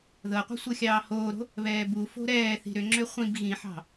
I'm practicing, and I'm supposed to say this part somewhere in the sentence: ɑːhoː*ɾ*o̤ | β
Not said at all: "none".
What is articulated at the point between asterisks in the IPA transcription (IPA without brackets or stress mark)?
ɾ